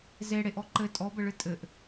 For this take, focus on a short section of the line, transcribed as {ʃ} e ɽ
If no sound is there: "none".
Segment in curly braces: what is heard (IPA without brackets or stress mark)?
z